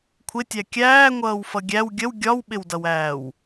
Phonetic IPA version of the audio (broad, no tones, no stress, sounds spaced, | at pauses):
kʷʰ ɪ tʲ æ kʲ æː ŋʷ ʌː w f ʌ ɡʲ æ w ɡʲ ə w ɡʲ ɒ w ɓ ɪ w d ʌ w æː w